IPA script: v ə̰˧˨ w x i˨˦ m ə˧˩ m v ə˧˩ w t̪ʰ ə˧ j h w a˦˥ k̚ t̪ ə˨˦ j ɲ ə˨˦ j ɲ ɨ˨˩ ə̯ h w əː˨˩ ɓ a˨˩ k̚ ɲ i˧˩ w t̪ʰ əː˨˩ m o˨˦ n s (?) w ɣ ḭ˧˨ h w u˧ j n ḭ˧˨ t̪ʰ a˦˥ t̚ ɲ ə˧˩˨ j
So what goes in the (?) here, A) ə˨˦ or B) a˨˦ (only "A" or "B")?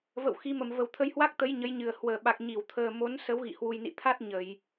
A